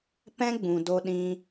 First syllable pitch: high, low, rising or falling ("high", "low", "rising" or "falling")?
high